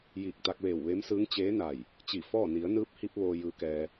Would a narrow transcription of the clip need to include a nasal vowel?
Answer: no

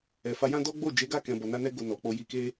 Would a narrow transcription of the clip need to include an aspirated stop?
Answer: no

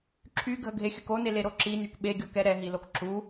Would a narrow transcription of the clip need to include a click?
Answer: yes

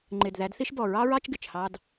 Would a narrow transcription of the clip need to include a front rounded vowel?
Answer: no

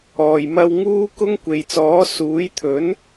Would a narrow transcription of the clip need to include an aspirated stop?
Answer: yes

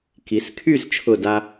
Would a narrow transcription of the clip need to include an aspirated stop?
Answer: yes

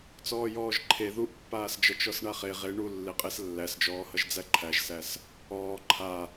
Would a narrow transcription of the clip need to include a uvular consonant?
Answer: yes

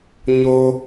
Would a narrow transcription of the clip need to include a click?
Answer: no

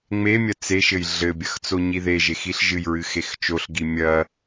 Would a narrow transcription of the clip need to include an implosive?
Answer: no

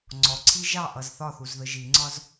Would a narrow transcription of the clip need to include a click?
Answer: yes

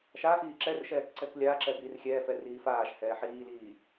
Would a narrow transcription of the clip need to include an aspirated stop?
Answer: no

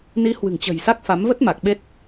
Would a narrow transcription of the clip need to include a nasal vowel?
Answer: no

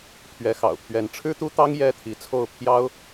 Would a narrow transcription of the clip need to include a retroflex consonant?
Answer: yes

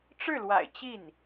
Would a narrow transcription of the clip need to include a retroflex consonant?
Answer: yes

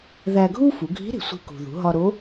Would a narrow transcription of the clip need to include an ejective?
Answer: no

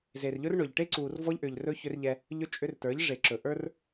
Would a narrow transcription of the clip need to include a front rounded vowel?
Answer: yes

